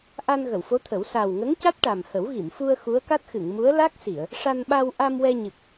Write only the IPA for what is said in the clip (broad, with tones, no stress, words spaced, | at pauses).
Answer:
ʔa˧n ɣə˨˩˨wfo˧˥t̪ʰə˨˩˦w sa˨˩wŋə˧˥ŋca˦˥t̚ ʈa˨˩mhə˨˩˦wɣi˨˩˨mfu˧ə̯ xu˧˥ə̯ka˦˥t̚xɨ˨˩˨ŋmu˧˥ə̯ la˦˥k̚si˨˩˨ə̯ | ʂa˧nɓa˧w ʔa˧m wɛ˧ ɲɨ˨˩k̚